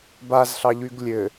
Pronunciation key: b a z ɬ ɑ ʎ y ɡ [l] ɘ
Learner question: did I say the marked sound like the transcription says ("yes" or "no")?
no